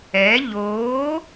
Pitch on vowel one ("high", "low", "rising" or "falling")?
rising